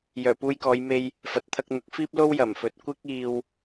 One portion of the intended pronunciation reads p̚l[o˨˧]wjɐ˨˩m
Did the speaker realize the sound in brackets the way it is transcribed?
no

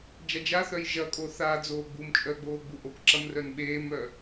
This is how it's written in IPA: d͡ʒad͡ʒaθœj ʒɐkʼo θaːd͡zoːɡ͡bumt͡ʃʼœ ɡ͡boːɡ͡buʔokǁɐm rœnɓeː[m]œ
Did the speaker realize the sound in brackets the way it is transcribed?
yes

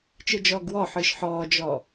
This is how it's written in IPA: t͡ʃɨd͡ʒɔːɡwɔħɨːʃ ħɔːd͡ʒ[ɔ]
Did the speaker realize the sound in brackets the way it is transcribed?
yes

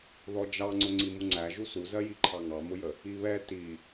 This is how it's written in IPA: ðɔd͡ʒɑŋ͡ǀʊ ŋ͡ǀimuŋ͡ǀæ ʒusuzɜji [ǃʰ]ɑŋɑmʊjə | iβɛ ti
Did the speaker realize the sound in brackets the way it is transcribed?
yes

